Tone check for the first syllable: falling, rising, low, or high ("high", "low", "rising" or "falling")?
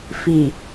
low